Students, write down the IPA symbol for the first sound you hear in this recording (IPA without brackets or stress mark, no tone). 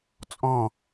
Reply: t͡sʼ